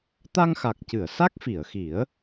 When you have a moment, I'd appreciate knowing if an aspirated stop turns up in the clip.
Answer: no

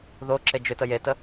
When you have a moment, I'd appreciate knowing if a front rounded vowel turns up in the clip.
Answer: yes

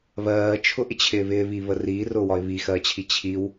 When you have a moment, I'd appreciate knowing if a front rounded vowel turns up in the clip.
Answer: no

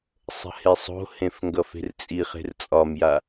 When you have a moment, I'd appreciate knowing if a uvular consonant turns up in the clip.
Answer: yes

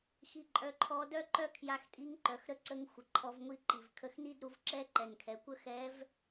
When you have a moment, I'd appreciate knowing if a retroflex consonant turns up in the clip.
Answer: no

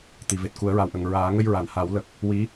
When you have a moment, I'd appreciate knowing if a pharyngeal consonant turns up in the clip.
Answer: no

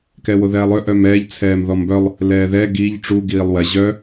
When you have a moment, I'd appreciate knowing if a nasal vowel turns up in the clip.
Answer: no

